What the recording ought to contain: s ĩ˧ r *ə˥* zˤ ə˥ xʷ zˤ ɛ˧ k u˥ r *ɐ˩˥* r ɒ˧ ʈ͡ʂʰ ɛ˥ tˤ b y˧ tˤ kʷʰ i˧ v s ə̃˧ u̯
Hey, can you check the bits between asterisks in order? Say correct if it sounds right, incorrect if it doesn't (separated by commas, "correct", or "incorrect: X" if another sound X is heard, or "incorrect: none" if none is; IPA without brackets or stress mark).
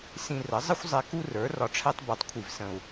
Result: incorrect: ə˩˥, incorrect: ə˞˩˥